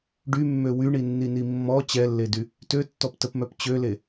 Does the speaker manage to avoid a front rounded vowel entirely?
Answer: no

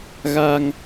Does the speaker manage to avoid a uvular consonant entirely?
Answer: yes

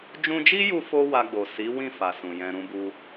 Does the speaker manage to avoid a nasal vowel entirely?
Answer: no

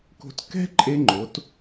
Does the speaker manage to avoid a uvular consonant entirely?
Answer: yes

